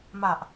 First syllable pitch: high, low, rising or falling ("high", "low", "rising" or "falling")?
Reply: low